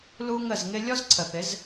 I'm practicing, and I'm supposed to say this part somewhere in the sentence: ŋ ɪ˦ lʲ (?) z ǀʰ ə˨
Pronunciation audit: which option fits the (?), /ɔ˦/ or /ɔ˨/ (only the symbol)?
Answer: ɔ˦